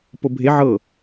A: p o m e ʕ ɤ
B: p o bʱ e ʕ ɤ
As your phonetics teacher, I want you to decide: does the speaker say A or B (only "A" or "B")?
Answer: B